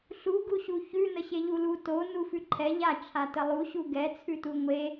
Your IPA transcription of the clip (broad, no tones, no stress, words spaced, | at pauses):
ɬu ɡuɕuçʉ nəɕeʎulu to nufʉǃʰɛ ʎa t͡ʃʰatəlˠu ɕuɡɛ t͡sʰʉtuŋʷe